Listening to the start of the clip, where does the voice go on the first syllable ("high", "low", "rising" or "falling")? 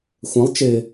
rising